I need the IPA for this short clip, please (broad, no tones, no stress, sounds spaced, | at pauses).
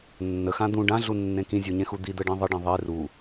nː ə x ã d̪ ũ ɖ ã ɮ u nː ẽ k ĩ zʲ u ɲ ẽ x u d̪ i d̪ ə ɖ ĩ ðˤ ə ɖ ẽ ðˤ e r u